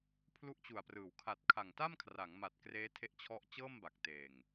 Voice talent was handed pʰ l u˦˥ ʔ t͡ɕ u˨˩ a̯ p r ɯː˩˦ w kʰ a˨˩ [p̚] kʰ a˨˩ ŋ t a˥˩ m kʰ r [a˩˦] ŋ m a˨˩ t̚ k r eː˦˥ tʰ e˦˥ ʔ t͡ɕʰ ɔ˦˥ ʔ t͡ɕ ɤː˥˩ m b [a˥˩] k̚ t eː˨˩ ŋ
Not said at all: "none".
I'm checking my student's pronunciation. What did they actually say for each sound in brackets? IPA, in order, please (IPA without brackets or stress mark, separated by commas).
t̚, a˩˦, a˨˩